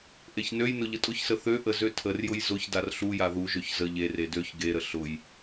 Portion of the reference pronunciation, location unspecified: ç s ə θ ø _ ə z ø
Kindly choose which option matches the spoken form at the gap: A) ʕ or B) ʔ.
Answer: B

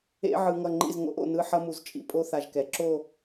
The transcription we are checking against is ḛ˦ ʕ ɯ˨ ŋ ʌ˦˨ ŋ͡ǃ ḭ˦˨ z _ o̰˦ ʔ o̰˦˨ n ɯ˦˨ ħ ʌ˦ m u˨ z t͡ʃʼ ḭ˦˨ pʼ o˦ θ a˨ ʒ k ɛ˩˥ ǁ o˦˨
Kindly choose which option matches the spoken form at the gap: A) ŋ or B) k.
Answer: A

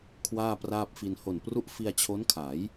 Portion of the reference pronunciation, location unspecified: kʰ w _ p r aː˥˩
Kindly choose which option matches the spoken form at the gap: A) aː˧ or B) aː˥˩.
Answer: B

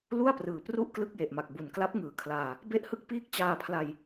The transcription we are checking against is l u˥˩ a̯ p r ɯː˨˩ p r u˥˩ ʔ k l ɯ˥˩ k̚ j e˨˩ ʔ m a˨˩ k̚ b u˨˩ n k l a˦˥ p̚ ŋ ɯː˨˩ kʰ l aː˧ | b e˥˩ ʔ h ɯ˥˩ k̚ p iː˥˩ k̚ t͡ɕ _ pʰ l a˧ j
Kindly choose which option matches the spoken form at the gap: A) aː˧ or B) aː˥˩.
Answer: A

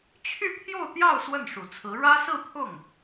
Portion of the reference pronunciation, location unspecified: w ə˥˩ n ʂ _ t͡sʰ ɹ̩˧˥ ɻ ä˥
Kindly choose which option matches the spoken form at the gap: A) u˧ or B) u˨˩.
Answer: B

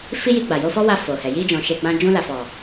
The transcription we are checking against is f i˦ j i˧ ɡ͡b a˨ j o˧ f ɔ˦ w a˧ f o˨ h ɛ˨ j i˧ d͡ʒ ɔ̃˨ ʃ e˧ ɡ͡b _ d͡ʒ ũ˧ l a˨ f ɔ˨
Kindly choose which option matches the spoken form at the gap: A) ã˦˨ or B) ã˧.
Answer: B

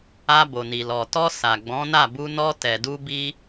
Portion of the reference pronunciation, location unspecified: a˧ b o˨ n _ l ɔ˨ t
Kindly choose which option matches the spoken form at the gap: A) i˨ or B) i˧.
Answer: A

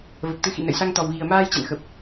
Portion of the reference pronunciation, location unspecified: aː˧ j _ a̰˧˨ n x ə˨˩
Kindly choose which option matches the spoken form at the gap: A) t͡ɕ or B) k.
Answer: A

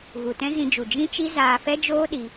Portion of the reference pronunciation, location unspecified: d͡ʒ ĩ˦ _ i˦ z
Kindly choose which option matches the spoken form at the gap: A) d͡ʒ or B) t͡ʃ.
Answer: B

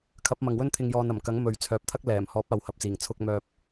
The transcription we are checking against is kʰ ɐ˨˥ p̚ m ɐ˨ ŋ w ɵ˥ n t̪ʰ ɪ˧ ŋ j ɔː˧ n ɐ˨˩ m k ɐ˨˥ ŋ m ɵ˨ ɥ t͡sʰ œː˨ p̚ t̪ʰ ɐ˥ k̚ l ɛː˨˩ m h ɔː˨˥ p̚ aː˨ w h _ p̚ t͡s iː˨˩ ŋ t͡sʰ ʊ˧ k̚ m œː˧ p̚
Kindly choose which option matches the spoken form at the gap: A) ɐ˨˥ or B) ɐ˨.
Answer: B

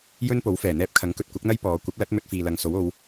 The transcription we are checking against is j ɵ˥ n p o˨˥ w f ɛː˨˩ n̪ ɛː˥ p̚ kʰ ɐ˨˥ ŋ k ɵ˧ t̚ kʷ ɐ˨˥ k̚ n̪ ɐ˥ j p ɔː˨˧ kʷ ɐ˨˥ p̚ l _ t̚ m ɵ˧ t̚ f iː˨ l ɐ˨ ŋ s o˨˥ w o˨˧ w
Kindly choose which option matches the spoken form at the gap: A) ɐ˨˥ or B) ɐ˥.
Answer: A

